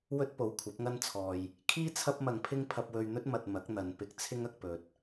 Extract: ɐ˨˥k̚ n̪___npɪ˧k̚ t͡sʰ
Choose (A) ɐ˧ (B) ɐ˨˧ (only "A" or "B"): B